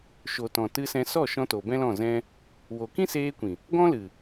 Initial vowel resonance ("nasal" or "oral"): oral